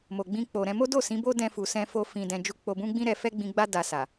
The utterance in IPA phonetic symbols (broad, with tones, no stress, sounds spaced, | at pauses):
m o˨ ɡ͡b ĩ˧ k͡p o˨ ɾ ɛ̃˧ m o˦ d o˦˨ s ĩ˨˦ b o˦ d ɛ̃˧ f u˨ s ɛ̃˧ f o˧ f ĩ˨ d ɛ̃˨ d͡ʒ u˧ k͡p o˧ b ũ˦ ɡ͡b ĩ˦ ɾ ɛ˧ f ɛ˦ ɡ͡b ĩ˧ ɡ͡b a˦ d a˧ s a˨